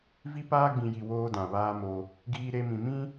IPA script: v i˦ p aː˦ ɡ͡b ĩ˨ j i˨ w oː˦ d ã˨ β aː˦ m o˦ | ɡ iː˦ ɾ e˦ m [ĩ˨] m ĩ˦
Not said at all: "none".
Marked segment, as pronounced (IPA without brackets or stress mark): ĩ˨